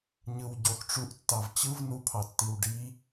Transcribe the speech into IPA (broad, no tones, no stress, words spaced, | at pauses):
ɲɯw ɟox ʈ͡ʂuʔtːɑv t͡ɕɯv nupʰɑtːiw ɖi